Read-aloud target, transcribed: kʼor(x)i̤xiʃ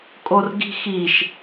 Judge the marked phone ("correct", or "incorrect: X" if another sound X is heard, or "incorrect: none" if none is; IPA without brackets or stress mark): incorrect: ɡ